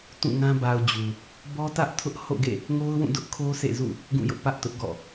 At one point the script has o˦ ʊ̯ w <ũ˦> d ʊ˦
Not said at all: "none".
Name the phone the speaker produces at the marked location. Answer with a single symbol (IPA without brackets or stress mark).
ũ˦˨